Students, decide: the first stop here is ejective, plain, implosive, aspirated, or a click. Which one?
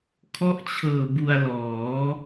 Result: aspirated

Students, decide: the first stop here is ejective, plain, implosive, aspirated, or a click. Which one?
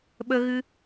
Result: implosive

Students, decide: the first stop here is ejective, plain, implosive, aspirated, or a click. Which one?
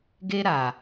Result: plain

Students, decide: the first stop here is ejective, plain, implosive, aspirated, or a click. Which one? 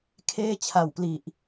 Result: aspirated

